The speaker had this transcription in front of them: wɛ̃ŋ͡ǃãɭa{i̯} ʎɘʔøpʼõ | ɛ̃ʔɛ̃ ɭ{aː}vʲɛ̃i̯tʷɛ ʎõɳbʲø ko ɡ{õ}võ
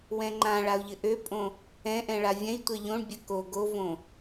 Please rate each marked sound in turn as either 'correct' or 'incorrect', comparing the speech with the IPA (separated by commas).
incorrect, incorrect, incorrect